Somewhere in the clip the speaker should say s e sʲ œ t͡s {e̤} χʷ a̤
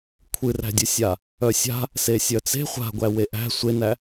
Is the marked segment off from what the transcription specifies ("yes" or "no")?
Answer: no